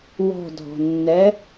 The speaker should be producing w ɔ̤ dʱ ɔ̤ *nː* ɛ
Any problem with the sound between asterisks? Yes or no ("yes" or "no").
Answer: no